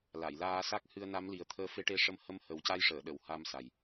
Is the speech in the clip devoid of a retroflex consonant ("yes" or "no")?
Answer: no